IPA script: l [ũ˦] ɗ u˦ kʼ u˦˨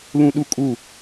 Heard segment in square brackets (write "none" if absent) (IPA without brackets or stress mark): ũ˦